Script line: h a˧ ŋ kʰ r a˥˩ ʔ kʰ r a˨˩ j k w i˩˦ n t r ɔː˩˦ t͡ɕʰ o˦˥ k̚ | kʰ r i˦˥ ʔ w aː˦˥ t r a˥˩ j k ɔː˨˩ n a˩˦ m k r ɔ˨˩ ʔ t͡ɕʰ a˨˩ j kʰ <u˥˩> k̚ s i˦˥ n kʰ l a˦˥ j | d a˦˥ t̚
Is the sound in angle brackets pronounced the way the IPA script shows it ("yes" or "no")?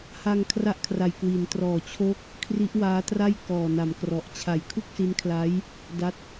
yes